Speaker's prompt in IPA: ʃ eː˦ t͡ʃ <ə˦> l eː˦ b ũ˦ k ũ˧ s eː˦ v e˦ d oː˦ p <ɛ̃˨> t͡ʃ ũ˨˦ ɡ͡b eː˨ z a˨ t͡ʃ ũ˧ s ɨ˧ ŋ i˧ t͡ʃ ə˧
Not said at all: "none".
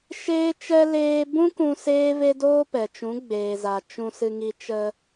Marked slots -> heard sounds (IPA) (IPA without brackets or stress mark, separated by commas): ɛ˦, ɛ˨